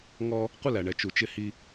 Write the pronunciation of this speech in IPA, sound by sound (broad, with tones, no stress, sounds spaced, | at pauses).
ŋ ɔ˦ | qʷ ɪ˦ l æ˨ ɳ ɛ˨ t͡ʃ u˨ t͡ʃ ɪ˦ h i˦